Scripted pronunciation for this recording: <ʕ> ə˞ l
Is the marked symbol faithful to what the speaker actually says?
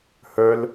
no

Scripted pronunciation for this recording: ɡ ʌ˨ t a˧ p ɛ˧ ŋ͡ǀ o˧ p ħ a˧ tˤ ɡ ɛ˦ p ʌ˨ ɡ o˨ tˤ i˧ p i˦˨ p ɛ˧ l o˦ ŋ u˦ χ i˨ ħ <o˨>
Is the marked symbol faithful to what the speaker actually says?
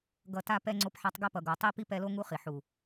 no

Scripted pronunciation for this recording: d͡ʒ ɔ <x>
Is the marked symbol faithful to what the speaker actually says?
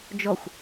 no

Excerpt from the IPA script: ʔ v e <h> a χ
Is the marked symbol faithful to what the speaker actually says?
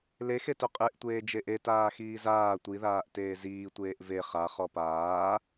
no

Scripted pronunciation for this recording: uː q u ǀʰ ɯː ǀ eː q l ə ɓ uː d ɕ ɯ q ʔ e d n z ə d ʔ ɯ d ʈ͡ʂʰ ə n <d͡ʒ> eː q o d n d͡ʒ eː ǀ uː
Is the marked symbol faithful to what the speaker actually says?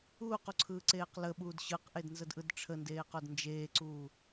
no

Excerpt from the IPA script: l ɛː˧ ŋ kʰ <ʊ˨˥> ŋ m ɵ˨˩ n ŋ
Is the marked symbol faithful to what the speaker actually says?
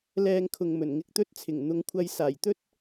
no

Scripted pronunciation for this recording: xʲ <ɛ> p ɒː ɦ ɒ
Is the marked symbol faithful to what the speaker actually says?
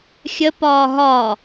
no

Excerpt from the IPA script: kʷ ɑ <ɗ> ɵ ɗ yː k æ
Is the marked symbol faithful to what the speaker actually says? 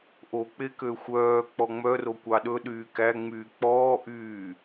yes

